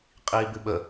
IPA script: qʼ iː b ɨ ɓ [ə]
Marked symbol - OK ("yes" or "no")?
yes